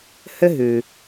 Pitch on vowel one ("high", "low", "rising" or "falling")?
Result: high